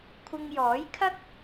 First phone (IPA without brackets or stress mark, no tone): kʷʰ